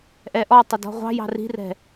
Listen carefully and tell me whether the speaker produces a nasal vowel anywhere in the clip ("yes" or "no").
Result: no